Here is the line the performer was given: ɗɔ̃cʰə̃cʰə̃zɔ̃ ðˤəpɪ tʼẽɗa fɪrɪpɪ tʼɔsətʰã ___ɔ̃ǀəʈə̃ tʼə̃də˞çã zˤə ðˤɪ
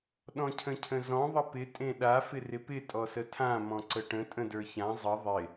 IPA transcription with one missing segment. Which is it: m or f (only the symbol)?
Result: m